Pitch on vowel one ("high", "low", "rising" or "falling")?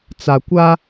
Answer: low